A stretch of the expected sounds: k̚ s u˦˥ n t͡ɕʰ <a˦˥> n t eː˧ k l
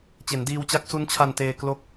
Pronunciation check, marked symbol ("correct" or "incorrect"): incorrect